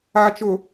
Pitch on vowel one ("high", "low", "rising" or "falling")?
low